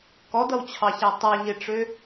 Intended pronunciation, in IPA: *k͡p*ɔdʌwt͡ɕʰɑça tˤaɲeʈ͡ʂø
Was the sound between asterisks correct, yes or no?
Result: no